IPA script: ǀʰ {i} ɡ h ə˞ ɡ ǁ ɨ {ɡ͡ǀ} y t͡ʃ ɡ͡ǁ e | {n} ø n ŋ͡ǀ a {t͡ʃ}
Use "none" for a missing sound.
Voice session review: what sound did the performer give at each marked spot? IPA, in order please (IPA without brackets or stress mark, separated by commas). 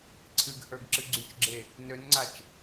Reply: ɨ, ɡ͡ǀ, n, t͡ʃ